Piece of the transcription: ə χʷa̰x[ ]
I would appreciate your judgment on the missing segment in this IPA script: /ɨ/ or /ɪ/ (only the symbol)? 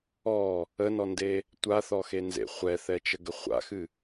ɨ